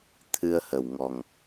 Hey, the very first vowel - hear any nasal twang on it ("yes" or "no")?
no